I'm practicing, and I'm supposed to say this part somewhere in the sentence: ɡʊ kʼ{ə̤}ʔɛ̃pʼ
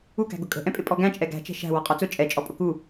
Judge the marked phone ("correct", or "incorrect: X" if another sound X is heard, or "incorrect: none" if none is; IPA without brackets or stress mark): correct